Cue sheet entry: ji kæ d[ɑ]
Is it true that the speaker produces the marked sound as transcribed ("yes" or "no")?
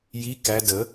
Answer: no